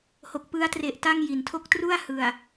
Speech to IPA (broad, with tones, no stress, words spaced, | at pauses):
ho˨˩k̚pɯ˦˥a̯tre˨˩ʔ ta˥˩ŋ ji˩˦ntʰo˥˩k̚ tru˥˩a̯ hɯ˨˩a̯